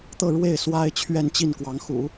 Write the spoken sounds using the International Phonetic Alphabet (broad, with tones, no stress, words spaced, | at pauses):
t̪ɤ˥˧ ɻwe˥˩ɪ̯ swa˥ɪ̯ t͡ɕʰɥɛ˥˧nt͡ɕi˥˩nkwɑ˧˥ŋxṵ˨˩˦